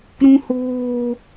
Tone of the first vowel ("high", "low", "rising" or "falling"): high